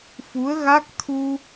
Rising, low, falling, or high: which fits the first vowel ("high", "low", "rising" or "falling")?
rising